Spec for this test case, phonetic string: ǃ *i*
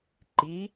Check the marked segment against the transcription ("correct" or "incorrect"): correct